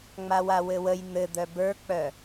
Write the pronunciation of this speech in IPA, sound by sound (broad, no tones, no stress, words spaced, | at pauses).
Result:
ŋ͡mawawɘwəj n̪ɘ d̪œbə˞k͡pœ